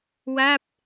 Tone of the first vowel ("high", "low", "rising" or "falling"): falling